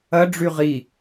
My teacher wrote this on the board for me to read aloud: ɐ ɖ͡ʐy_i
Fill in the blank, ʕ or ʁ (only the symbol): ʁ